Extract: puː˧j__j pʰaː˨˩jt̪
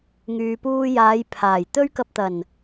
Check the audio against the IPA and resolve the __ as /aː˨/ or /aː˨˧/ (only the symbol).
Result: aː˨˧